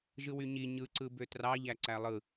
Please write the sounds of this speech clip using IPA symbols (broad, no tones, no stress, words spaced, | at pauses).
ʒɯwyɲi ɲɯǀɯ bøtrɑʎæ ǀælˠɯ